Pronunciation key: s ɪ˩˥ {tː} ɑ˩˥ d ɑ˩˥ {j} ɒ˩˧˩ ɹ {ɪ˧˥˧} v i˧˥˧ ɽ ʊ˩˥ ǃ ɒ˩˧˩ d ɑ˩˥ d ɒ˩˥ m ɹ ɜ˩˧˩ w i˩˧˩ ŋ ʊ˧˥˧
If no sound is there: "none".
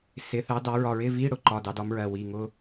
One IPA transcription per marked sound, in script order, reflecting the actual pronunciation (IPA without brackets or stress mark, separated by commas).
θ, ɹ, ɪ˧˥˧